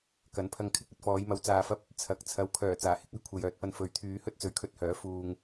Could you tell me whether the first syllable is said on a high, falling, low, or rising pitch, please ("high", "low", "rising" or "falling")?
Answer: rising